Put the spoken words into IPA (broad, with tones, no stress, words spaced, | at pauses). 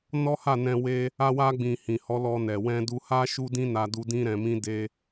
nɔ˦ha˦˨nɛ̃˧ we˧ | a˧wa˧ɡ͡bĩ˨ hĩ˨ hɔ˨˦lɔ˧ nɛ˨wɛ̃˧du˧ha˦ ʃu˦dĩ˦na˧du˧ dĩ˦ɾɛ̃˧mĩ˦ de˦